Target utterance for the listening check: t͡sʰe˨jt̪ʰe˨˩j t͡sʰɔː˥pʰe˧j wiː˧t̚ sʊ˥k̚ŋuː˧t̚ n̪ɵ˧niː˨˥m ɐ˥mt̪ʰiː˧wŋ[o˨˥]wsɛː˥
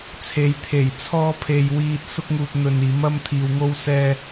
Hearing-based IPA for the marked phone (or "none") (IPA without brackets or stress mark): o˥